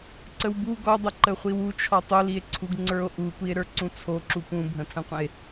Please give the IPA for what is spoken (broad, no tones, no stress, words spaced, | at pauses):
ǀəwbu ɡɔdˤə ǃəχʷiwut͡ʃʰɔ tˤolie̯ǀʰuɡ ŋ͡ǀə˞o̯ʔutʷie̯ɾə˞ ǀũt͡sʰoǁu pũbʱə̃tʰə̃qʷə̃e̯